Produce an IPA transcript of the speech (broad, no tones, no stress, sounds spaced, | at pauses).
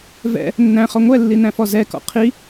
v ɛ̰ | nː æ̃ χ ɔ ŋʷ ɛ lː i n æ̃ f ɔ z ɛ k ɔ̰ qʰ i